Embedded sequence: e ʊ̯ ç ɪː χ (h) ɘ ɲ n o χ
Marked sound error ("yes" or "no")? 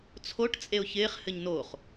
no